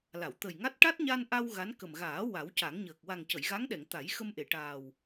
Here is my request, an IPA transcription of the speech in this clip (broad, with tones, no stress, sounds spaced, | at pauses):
l a˨˩˨ w t̪ ə˨˩ j ŋ a˦˥ t̚ ʈ a˦˥ t̚ ɲ a˧ n ʔ a˧ w ɣ a˧˥ n k ə˨˩ m ɣ aː˨˩˦ w a˨˩˦ w c a˨˩˦ ŋ ɲ əː˨˩ k̚ w a˨˩ ŋ c ə˨˩˨ j ɣ a˧˥ ŋ ɗ ɛ˨˩˨ ŋ t̪ a˨˩˦ j x ə˧ m ʔ e˨˩˨ ʈ aː˨˩ w